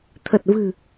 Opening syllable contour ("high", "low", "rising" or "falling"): low